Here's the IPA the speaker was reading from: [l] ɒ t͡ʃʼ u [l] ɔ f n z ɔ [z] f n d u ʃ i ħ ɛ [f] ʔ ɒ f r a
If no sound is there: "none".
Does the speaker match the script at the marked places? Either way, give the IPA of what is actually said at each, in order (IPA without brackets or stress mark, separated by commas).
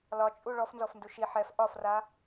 l, ɭ, none, f